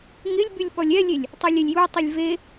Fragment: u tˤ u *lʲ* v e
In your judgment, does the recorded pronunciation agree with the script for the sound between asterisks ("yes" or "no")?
yes